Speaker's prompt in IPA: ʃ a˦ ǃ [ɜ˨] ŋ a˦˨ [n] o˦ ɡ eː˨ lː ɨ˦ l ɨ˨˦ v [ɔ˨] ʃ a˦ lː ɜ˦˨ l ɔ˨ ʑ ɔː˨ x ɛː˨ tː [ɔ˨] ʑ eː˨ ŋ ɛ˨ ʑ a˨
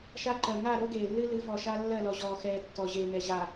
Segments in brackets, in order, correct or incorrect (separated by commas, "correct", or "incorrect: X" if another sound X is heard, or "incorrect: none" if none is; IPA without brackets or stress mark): correct, incorrect: ɾ, correct, correct